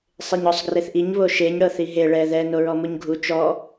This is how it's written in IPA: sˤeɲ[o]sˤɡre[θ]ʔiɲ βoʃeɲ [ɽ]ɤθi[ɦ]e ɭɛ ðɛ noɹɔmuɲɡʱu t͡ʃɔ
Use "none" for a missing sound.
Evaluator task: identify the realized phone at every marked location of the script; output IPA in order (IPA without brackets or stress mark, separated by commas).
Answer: ɔ, θ, ɽ, ɦ